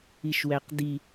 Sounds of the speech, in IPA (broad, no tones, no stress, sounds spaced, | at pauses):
i ʃ w æ q d i